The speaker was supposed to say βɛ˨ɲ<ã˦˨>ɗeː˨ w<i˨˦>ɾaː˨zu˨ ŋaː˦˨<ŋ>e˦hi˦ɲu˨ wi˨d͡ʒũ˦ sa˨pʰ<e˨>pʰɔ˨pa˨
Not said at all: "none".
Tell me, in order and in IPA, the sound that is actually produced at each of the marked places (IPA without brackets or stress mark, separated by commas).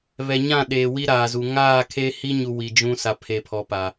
ã˦˨, i˦, kʰ, e˨